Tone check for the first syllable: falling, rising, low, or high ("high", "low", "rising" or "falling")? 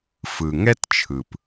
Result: low